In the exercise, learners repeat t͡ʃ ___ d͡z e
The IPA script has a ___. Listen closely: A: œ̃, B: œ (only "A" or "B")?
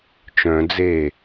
A